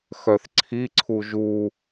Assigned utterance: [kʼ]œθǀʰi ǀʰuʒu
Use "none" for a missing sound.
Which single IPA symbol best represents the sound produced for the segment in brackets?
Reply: x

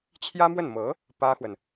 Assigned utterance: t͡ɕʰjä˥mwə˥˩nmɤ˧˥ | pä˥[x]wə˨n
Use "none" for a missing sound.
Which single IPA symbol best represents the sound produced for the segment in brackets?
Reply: x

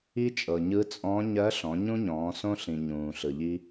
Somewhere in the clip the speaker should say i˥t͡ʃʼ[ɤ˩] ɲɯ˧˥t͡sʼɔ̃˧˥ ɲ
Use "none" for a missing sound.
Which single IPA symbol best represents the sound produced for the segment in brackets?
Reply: ɤ˩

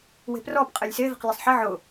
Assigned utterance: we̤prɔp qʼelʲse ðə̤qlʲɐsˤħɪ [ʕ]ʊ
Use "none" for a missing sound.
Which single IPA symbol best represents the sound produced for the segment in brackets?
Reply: ʕ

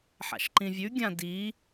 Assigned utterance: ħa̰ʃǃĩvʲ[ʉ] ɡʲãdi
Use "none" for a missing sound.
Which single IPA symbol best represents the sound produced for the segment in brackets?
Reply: ʉ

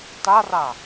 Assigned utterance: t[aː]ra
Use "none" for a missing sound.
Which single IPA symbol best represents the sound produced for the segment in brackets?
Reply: a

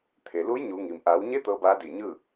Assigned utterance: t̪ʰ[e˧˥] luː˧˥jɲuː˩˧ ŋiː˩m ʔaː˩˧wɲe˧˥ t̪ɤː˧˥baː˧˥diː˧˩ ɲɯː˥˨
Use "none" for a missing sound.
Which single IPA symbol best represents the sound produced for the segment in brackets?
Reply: e˩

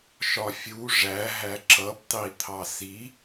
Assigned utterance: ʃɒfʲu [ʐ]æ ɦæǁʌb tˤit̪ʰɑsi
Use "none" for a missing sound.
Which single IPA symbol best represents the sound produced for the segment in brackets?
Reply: ʐ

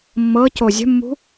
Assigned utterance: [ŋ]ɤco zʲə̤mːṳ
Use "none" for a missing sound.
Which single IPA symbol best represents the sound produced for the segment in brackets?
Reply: mː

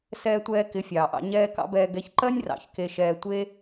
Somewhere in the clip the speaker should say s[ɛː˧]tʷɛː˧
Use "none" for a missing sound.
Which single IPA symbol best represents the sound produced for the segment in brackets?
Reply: ɛː˧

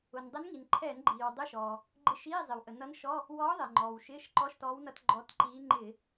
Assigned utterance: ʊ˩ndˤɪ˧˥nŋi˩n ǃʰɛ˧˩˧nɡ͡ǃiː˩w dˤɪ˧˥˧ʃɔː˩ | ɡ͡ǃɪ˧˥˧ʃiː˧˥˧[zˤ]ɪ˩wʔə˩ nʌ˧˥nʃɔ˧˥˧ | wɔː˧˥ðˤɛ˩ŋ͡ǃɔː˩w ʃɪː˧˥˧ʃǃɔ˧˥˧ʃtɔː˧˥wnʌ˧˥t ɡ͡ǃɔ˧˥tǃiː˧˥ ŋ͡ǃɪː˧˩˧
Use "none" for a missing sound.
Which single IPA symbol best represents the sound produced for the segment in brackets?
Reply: zˤ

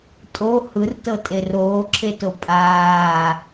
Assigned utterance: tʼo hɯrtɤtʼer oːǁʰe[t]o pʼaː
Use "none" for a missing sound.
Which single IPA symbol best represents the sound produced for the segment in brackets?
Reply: t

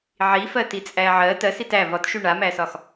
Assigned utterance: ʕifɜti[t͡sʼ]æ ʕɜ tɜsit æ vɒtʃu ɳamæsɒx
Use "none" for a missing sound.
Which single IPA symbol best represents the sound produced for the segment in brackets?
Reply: t͡sʼ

